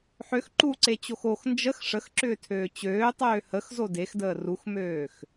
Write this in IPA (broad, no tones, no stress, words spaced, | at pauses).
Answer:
ħøx ǃuǀet͡ɕox ox nd͡ʒəx ʂəxǁʏːtʰøː t͡ɕøːtˤøː həxzo dexdəː ruxmøːx